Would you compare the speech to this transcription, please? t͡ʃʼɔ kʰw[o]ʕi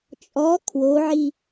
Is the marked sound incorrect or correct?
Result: correct